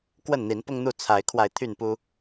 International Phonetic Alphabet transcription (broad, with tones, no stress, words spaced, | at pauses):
kwə˥˨nn̪i˨˦npʊ˦ŋn̪u˥˨ t͡sʰa˨˦ɪ̯kʰwa˧ɪ̯ t̪ʰy˥˨npu˦